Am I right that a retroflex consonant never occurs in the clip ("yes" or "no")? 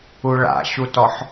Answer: no